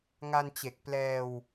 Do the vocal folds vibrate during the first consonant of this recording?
yes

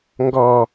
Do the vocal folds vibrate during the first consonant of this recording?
yes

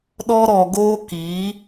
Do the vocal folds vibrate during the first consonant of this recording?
yes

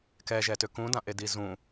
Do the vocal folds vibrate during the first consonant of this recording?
no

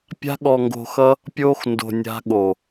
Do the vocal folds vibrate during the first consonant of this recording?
no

